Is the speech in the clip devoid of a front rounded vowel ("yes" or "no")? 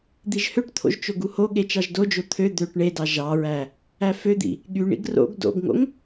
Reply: no